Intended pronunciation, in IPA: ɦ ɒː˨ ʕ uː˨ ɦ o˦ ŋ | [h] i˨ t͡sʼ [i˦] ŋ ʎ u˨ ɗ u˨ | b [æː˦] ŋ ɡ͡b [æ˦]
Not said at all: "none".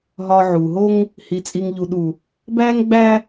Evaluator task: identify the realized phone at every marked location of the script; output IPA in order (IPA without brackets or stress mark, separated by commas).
h, i˨, æː˦, æ˦